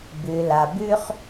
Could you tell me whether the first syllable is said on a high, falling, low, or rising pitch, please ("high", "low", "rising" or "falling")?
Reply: low